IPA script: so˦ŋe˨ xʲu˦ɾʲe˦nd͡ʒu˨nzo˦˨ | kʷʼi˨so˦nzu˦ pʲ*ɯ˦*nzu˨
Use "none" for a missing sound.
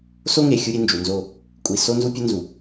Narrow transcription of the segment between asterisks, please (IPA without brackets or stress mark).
ʊ˦